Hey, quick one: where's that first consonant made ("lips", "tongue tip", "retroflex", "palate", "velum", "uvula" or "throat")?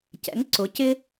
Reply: palate